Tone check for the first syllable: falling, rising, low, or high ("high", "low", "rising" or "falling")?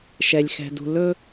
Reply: low